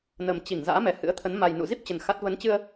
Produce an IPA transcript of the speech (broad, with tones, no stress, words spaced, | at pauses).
nə˨˩m t͡ɕi˧˩ŋ za̰ː˧˥mɛ˨˩hɨ̰˧˥ə̯t̪ʰə˨˦n ma˨˩jnṵ˧˨zi˦˥p̚t͡ɕə˨˩n xa˦˥t̚ və˨˦nt͡ɕɨ˧ə̯